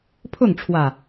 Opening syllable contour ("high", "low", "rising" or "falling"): falling